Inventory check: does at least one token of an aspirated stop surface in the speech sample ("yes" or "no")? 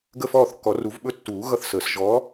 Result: no